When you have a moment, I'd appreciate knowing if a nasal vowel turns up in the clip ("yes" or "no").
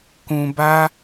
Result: yes